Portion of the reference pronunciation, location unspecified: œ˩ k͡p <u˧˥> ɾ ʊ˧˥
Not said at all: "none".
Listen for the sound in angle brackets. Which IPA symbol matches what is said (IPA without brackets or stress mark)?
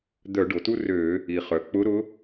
ʊ˧˥